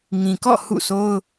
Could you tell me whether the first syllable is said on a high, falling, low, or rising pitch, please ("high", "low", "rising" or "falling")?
low